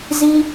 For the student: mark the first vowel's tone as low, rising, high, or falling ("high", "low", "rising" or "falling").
high